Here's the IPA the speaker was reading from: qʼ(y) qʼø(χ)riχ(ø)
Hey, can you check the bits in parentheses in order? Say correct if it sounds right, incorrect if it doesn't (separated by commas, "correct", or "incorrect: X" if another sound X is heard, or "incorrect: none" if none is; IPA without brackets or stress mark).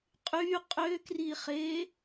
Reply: correct, incorrect: k, incorrect: e